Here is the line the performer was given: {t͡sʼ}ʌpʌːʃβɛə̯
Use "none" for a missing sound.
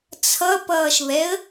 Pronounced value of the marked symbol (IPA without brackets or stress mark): t͡sʰ